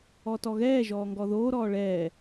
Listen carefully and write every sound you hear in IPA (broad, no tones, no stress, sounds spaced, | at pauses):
ɔ t ɔ ɣ ɛː ʒ ɔː ŋ ɡ ɔ ð oː ɾ ɔː ɭ ɛː